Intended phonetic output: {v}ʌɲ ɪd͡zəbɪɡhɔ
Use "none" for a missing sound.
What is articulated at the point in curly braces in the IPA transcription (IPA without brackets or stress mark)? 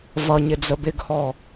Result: v